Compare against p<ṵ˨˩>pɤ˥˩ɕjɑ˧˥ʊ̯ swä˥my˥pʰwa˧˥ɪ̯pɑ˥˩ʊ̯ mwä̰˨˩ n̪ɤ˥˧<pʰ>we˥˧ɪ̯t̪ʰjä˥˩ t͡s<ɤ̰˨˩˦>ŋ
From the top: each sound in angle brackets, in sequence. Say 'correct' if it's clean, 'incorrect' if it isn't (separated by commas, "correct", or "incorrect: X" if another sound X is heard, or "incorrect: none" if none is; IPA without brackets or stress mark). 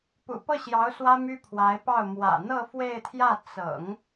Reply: correct, incorrect: f, correct